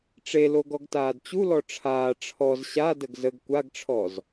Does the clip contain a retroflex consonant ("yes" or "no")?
yes